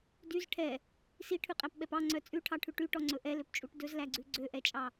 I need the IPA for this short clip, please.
d y z ʈʰ ɛ | s i ʈʰ ʉ qʼ æ p ɓ ɛ p ɑ ŋ͡ǀ œ t͡sʼ ʉ ʈʰ ɑ ʈʰ ʉ ʈ y ʈ ɔ ŋ͡ǀ ɵ ʔ ɛ l ø p t͡ʃʼ u ʈ d ɵ z l æ ɡ͡ǀ ʉ ɡ͡ǀ ø ʔ ɛ t͡ʃʼ ɑ

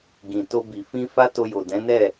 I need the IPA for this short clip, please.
ɡ ĩ˨ t o˧ b i˨ f ĩ˧ f a˦ t o˧ j o˨ d ɛ̃˨˦ n ɛ˦˨

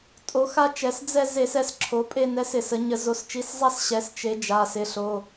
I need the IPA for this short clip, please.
tʼ o˩˧ x a˦ t͡ʃ ɛ˩˧ s d͡z ɛ˦˨ z e˧˩˧ s ɛ˩˧ s ǁʰ o˩˧ pʼ e˦˨ n ɛ˨˥ s ɪ˧˩˧ s ə˩˧ ɲ ə˧˩˧ z o˩˧ s t͡ʃ i˩˧˩ s zˤ a˦˨ s ɕ ɛ˩˧ s t͡ʃ e˩˧ d͡ʒ a˩˧˩ s ɪ˩˧˩ ɬ o˩˧˩

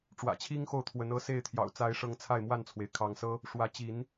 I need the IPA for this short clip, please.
ʈ͡ʂ w ä̰˨˩ t͡ɕʰ i˦ ŋ x o˥˨ ʊ̯ t̪ʰ w ə˨˦ n ɤ˦ s e˥˨ ɪ̯ t̪ʰ j ɑ̰˨˩ ʊ̯ t͡s a˨˦ ɪ̯ ʂ ɤ˨˦ ŋ t͡sʰ a˥˨ ɪ̯ m w a˥˨ n t͡sʰ w e˩ ɪ̯ kʰ ɑ˨˦ ŋ s ɤ˦ | ʂ w ä˨˦ t͡ɕ i˨˦ n

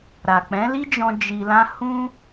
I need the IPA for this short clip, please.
ɾ a˨ k͡p ɛ̃˨˦ l i˦ d͡ʒ ɔ̃˧ d͡ʒ i˧ l ã˦ h ũ˦

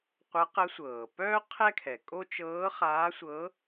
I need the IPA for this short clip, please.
qʷ ə˧˥ q ə˧˥ sʷ ɤː˩ p œː˥ qʰ ɛ˥ kʰ ɛ˩ kʼ o˥ t͡ʃ ɤː˧˥ χ aː˧˥ sʷ ɤ˧˥

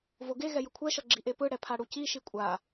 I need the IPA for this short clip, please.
v o ɡ e ɣ ɛ j ɯ kʷʰ ɛ ʃ ʌ ɡ͡ǁ i ʔ e p ɯ ɽ ɛ pʰ a ɽ u c i ʃ i kʷʼ a

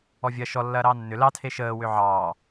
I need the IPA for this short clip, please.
ɔ vʲ ɐ ʃ ɔ lː ɐː ɾ ɑː nː ʏ l ɑ tʰ e ʃ əː w ʏ ʕ ɑː

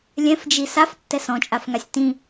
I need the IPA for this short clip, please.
lʲ ɛ̃ f d͡ʒ i s a f tː ɛ s ɔ̃ t͡ʃʼ a f ŋ a sʲ t ĩ

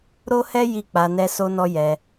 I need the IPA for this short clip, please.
ɾ o˦ h ɛ˦ j i˦˨ k͡p a˧ n ɛ˧ s o˧ n ɔ˧ j ɛ˧

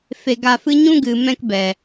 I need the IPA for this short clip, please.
f e˧ ɡ a˧ f ɨ˦ ɲ ũ˦ ɡ ɨ˨ m ɛ̃˧ k b ɛ˨

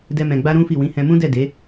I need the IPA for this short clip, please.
d ɛ˦ m ɛ̃˧ ɡ͡b a˦ ɾ ũ˦ f i˦˨ w ĩ˨˦ h ɛ̃˧ m ũ˦ d ɛ˦˨ d e˨˦

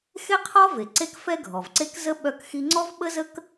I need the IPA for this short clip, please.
x e˥ qʰ ɔ˥ v e˩ ǀ e˥ k f ɛ˥ ɡʱ ɔ˩ v ǀ e˥ k z ə˥ ɓ œ˥ k x i˥ ŋ͡ǀ ɔ˥ v ɓ ə˥ z ə˥ k

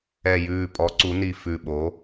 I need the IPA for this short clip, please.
ɛ˨˩ j ʉː˨˩ pʼ ɔ˩˧ ǀ u˩˧ n i˨˩ f ʉ˨˩ ɓ o˩˧

